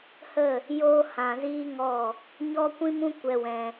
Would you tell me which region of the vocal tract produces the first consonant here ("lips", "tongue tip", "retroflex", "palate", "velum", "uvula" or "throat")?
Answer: throat